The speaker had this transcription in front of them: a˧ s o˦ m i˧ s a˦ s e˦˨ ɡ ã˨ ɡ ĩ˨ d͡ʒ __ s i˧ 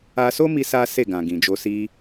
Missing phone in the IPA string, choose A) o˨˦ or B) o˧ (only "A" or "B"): B